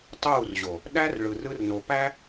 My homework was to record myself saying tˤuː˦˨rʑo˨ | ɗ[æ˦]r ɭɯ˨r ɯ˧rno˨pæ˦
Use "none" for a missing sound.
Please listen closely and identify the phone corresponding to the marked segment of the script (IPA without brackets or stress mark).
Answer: æ˦